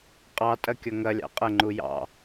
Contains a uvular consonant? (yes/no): yes